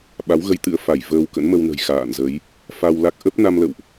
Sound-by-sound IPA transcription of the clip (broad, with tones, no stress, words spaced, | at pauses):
ɓa˨˦wɣə˧jt̪ɨ̰˧˥ə̯ fa˧˩jvəː˧w kə̰˧˥nmə˧wnə̤˨˩j xa̰ː˧˨nzə˨˦j | fa˧wla˦˥k̚ ʔə˦˥p̚ na˧mlə̰˧˨wʔ